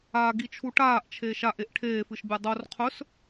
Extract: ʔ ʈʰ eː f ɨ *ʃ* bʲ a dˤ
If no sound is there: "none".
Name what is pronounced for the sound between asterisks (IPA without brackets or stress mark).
ʃ